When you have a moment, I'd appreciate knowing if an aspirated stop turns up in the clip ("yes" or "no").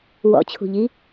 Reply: yes